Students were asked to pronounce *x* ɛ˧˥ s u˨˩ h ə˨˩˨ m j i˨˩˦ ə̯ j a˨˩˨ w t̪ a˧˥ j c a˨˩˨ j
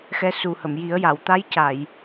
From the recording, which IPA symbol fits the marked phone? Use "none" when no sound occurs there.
x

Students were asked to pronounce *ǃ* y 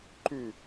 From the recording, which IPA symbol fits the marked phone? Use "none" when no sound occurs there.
ǃ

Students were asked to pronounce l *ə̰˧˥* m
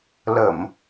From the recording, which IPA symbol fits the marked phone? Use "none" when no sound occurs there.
ə˧˩˨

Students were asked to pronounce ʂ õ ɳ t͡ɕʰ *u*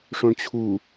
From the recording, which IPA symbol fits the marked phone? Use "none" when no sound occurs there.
u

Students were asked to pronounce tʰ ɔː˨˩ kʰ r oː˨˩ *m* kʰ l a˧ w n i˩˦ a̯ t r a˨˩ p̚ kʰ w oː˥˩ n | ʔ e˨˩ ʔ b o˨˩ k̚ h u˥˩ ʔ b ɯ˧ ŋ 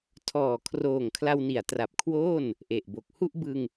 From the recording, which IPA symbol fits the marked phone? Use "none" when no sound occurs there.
ŋ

